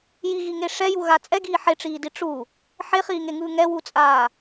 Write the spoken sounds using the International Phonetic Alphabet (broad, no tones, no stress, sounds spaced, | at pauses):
j i ɣ i ŋ e ʂ ɛ j u ɣ a t͡sʼ ɛ ɡ iː ħ e ʈ͡ʂ iː d i ʈ͡ʂ u | ħ e χ iː ŋ e ŋ ɯː ŋ ɛ w u t͡sʼ aː